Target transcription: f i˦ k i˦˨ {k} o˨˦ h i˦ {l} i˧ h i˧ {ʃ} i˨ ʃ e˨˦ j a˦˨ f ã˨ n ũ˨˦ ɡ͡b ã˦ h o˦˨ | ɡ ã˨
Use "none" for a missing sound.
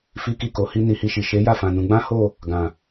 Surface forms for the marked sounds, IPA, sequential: k, n, ʃ

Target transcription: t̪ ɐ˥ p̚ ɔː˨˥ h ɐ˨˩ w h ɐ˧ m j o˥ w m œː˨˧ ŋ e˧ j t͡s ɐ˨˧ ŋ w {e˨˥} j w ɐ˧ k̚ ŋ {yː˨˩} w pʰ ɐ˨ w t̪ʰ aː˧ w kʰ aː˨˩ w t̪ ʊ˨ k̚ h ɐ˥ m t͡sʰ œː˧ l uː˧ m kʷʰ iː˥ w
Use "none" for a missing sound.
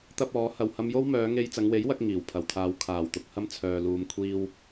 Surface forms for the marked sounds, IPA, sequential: e˨˥, iː˨˩

